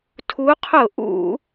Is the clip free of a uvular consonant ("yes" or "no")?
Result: no